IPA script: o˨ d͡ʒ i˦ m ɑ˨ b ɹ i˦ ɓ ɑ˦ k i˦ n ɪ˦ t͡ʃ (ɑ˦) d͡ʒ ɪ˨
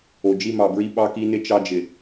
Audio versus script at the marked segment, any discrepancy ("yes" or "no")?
no